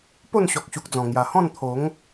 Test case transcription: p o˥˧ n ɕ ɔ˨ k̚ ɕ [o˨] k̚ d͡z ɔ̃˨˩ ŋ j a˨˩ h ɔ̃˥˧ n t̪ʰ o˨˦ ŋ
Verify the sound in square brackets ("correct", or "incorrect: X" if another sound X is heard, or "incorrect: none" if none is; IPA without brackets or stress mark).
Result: incorrect: u˨